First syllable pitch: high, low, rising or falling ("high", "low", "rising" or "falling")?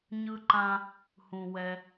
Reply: high